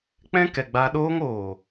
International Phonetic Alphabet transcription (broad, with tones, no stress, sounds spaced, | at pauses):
k͡p ɛ̃˦ k ɛ˨ ɡ͡b a˧ ɗ oː˦ ŋ oː˨